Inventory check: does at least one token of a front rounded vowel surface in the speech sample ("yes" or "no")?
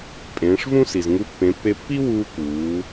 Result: no